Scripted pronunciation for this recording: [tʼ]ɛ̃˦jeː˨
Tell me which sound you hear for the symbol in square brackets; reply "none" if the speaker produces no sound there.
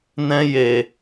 n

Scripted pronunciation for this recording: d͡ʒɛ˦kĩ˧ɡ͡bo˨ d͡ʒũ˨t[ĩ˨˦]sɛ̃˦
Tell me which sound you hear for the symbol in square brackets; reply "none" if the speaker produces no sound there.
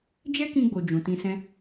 ĩ˧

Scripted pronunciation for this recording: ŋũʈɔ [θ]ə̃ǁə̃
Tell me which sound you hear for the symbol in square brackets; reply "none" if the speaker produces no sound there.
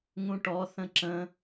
θ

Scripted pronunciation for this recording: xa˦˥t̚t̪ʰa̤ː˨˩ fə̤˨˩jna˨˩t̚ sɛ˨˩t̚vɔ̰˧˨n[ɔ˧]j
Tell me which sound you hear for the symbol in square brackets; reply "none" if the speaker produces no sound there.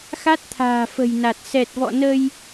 ə˧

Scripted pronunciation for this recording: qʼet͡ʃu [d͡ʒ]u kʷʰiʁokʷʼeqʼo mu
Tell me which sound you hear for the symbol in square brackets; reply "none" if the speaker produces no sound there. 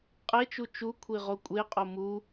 t͡ʃ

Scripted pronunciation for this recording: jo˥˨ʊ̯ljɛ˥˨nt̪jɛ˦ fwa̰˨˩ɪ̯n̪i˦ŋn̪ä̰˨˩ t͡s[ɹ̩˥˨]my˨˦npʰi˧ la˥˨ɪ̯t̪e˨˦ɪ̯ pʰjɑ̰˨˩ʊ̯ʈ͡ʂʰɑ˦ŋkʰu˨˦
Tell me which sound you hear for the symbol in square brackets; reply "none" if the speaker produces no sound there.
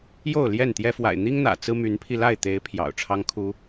ɹ̩˦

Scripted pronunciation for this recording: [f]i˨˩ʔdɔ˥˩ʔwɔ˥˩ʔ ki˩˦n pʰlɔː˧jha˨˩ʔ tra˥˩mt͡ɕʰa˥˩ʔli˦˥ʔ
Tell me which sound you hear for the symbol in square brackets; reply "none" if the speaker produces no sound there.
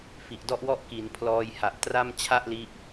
f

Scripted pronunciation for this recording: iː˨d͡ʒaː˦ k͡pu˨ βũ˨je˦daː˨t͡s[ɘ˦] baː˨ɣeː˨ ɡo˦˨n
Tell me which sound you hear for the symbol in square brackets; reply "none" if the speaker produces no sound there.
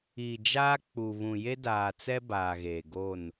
ɛ˦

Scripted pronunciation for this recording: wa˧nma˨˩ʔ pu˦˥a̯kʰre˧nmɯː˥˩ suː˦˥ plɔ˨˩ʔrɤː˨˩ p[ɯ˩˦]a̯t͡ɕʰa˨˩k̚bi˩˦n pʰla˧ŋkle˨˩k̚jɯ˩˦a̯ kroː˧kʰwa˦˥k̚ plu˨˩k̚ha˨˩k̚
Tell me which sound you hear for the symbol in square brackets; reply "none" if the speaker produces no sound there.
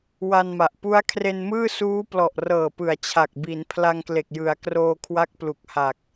ɯ˩˦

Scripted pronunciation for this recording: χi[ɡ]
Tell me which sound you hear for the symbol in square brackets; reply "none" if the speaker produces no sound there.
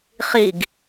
ɡ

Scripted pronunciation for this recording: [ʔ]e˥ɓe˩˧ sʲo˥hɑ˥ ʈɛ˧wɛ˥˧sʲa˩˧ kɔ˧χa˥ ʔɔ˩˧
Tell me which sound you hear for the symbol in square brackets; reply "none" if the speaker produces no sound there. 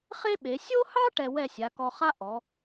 χ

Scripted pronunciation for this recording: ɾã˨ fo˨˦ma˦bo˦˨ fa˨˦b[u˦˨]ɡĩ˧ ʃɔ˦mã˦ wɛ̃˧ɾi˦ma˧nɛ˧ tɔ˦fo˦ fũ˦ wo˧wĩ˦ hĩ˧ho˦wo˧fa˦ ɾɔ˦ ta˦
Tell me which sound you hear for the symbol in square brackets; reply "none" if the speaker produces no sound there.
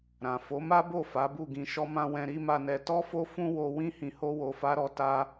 u˦˨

